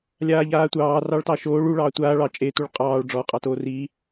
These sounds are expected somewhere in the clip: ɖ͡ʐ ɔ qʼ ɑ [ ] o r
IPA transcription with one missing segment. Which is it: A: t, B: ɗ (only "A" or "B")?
A